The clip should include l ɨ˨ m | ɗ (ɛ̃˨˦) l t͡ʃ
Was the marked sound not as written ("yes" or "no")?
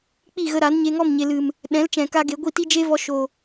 no